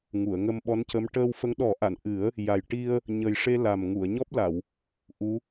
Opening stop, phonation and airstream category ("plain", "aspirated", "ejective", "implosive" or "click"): implosive